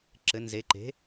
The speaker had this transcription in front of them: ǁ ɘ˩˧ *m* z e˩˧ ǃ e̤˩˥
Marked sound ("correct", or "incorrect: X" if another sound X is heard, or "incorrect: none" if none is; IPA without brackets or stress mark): incorrect: n